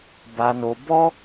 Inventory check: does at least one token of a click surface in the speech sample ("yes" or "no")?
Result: no